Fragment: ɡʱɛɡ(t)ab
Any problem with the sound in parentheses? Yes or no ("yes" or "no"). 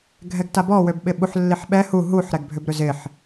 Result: no